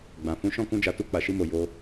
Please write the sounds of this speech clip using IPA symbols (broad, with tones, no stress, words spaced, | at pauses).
ɡ͡bã˨ fũ˨˦ʃɔ̃˦˨ kũ˧d͡ʒa˨tu˧ k͡pa˨ʃi˧mo˨ jo˧